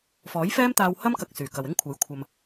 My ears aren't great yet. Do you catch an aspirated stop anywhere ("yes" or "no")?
yes